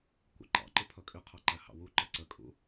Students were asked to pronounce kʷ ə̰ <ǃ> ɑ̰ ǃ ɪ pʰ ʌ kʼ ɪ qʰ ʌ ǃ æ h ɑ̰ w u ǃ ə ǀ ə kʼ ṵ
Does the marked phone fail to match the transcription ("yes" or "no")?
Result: no